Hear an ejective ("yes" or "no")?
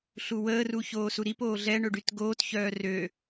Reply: no